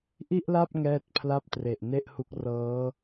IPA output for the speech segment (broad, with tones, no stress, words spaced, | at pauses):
ʔi˥˩ʔla˥˩p̚ ŋɛː˥˩t̚pʰla˥˩p̚tre˨˩ʔ ne˥˩ʔhu˦˥k̚ rɤː˦˥